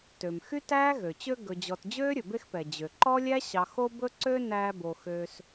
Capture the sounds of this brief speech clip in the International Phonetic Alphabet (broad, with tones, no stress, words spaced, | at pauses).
tø˩mxy˥tæː˥ ɣø˩t͡ɕø˦ ɡɵ˨d͡ʑɔ˨t d͡ʑøː˥ɾʲɵ˩be˦xpɛ˩ d͡ʑø˩ǃɔ˥lʲæ˥ ɕɑ˨xo˦bɵ˦ǀø˦ næː˦bo˨ xø˦s